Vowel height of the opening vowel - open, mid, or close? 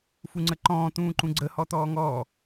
close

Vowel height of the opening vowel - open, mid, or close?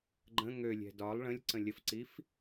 mid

